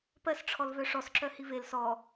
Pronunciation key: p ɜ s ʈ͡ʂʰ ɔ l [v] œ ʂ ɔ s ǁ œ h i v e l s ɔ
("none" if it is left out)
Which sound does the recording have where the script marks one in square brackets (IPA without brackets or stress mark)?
v